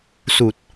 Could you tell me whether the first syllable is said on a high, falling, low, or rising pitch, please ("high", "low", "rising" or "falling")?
low